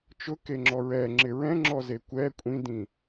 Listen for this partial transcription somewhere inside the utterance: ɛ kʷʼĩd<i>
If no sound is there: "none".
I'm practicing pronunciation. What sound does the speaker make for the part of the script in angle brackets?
ĩ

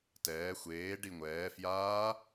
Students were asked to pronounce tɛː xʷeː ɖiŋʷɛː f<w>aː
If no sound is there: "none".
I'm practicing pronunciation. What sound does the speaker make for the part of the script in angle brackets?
j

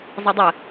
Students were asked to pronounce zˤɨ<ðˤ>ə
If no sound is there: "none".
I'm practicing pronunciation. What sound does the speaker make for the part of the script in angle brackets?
dˤ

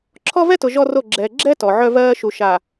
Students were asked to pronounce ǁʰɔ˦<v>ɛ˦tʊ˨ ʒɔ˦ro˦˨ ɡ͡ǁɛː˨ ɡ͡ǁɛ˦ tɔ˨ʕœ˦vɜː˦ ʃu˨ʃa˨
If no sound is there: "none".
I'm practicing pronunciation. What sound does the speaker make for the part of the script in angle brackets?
v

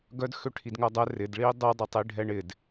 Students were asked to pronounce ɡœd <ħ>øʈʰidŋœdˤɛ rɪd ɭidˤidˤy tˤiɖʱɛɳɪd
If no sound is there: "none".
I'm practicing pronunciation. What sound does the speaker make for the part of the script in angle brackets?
x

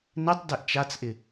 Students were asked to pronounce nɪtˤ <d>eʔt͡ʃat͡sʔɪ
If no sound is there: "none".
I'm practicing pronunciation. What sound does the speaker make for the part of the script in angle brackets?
d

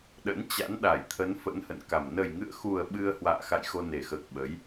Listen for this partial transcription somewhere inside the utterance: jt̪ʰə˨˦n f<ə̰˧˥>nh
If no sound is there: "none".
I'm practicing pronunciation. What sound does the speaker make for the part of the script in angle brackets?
ə̰˧˥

